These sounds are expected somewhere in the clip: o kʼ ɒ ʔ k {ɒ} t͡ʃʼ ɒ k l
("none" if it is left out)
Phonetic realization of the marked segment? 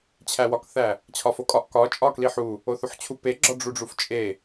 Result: ɒ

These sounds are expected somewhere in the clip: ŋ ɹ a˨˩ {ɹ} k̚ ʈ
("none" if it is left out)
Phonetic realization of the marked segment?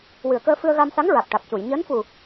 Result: none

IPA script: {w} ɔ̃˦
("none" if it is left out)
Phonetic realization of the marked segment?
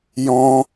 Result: j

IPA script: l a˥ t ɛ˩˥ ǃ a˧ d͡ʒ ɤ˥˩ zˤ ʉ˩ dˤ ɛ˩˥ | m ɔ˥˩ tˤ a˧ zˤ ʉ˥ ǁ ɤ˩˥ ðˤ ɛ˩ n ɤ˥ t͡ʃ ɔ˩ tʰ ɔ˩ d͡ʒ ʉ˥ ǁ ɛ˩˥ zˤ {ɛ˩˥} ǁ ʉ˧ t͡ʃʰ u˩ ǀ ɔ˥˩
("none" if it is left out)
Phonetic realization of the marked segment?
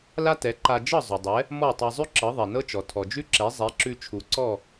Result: ɛ˩˥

